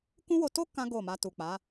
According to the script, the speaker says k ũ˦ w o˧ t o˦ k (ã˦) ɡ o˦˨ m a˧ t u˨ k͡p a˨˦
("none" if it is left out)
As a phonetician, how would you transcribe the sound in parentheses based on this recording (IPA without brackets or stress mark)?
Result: ã˦